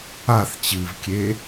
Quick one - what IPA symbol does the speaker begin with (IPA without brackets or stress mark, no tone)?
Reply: a